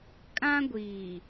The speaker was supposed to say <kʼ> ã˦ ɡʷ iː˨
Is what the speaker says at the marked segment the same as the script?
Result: yes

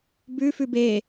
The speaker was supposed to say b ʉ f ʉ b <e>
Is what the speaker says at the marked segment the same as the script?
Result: yes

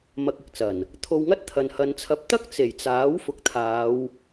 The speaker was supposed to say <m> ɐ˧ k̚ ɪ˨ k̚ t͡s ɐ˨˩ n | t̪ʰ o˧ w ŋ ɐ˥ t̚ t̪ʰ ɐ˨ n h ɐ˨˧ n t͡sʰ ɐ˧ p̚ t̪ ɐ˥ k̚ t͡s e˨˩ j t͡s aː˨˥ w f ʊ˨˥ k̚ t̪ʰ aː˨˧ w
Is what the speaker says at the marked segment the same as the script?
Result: yes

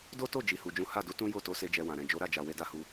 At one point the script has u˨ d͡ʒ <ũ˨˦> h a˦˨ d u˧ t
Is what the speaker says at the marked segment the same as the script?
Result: yes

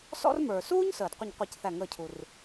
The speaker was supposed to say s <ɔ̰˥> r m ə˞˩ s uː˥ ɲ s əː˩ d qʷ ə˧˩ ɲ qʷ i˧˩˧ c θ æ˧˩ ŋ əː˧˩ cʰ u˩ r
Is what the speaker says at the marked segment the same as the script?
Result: yes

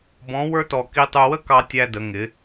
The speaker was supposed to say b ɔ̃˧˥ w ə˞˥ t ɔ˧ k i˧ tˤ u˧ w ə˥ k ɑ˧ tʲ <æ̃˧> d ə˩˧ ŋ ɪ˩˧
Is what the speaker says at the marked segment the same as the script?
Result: no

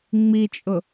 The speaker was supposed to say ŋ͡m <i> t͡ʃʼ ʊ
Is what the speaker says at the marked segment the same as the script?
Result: yes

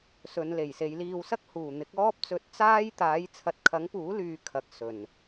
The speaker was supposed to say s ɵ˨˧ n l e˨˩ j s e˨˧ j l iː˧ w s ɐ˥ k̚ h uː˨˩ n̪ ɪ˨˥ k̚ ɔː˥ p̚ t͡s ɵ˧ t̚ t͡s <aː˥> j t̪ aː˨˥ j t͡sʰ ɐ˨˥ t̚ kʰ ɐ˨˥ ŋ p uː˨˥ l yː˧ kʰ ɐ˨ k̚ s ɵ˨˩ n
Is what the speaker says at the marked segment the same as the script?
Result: yes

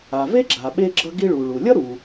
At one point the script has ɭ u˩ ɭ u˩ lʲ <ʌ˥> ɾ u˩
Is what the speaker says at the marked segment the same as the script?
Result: yes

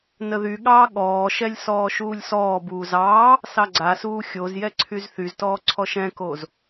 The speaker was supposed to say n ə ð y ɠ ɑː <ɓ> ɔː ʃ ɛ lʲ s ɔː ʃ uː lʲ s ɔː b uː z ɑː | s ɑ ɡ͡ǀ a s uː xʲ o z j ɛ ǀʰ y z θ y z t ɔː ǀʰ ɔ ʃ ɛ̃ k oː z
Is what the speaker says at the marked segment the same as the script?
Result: no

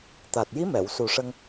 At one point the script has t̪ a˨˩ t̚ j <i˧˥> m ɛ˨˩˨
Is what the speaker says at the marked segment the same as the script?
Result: yes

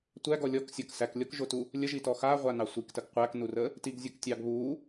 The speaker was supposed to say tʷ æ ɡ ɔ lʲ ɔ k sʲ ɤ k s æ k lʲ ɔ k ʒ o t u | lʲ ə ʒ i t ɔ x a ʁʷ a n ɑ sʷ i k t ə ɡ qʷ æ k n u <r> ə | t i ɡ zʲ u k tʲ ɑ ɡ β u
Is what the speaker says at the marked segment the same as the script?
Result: yes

